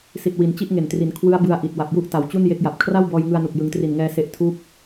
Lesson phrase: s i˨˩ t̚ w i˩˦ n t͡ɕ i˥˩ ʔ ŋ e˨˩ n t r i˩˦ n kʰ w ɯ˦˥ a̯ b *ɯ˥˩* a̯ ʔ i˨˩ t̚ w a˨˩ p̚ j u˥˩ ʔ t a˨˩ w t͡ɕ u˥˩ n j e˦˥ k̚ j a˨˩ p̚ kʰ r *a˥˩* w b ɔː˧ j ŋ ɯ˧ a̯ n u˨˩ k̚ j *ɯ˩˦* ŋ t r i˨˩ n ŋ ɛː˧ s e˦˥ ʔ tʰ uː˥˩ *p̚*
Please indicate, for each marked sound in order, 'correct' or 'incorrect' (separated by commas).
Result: incorrect, correct, correct, correct